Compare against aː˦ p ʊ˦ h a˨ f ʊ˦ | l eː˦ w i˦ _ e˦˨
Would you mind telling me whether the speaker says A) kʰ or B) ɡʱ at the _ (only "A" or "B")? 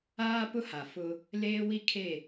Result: A